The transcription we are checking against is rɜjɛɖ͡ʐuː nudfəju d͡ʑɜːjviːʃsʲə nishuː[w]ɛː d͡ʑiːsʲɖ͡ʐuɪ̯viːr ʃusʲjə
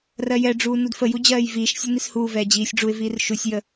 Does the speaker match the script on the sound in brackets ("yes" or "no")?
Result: no